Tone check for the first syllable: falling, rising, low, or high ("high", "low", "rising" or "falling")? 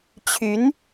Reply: rising